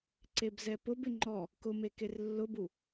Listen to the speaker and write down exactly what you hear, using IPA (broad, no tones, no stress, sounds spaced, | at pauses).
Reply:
ǀ e b z ɛ p ʊ b ɪ ŋ͡ǃ ɔ | k ʊ m e k e r lː ʊ b u